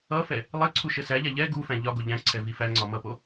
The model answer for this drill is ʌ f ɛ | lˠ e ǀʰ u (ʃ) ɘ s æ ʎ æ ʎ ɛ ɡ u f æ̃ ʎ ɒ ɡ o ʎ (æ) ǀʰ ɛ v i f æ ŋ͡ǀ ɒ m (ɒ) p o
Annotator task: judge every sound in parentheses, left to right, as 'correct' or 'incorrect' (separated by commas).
correct, incorrect, incorrect